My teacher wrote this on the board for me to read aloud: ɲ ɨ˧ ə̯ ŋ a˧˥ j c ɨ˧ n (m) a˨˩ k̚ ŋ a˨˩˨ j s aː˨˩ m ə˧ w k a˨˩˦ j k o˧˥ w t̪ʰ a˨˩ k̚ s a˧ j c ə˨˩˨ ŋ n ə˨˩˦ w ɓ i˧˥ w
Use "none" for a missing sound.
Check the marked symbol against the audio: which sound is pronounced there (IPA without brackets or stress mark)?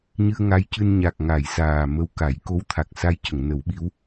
ɲ